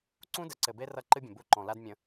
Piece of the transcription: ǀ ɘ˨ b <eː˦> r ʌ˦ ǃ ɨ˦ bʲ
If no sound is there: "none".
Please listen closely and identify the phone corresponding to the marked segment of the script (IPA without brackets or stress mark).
e˦